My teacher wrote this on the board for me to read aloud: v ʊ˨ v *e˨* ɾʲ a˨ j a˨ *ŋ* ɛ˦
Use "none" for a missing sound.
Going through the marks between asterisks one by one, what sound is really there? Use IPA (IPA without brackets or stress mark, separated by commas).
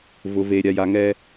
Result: e˨, ŋ